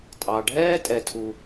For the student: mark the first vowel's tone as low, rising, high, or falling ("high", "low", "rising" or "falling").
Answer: low